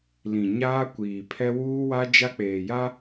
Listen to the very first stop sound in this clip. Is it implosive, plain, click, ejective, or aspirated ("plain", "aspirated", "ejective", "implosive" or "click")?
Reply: plain